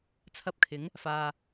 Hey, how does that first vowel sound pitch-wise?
high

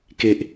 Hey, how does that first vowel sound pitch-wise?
low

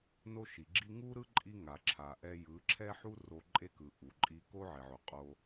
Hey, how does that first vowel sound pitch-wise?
high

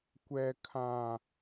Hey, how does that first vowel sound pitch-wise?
low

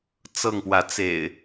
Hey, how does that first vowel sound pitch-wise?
falling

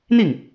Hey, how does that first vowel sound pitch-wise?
falling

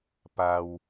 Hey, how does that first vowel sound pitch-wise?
low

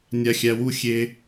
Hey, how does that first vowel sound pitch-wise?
low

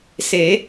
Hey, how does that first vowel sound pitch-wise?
rising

